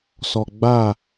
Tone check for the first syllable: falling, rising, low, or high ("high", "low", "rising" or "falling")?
low